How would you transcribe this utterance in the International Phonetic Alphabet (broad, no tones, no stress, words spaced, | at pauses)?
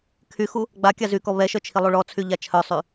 kʰyxu | ɡ͡ba kʲazykɔ βɛʃœ t͡ʃʰilˠuɭɔt͡sʰy ʎat͡ʃʰœsˤy